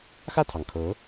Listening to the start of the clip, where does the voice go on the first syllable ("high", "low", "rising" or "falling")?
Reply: falling